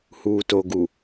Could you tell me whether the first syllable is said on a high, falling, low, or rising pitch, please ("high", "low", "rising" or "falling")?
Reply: low